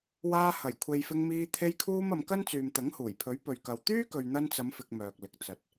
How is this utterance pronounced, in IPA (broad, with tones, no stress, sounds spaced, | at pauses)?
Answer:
w aː˧ h ɐ˨˩ j kʷʰ e˨ j f ɪ˧ ŋ m iː˧ t̪ʰ e˧ j kʰ uː˧ m ɐ˨˧ m k ɐ˥ n t͡s yː˨ m t̪ ɐ˨˥ ŋ h uː˨˩ j pʰ ɵ˨˥ ɥ p ɵ˨ ɥ k ɐ˨ w t̪ yː˥ k ɵ˨ ɥ n̪ ɐ˧ n t͡s ɐ˨˧ m f ɪ˧ k̚ m œː˨ k̚ l ɪ˨ k̚ t͡s ɐ˨ t̚